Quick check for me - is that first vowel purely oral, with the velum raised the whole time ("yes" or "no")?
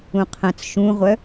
no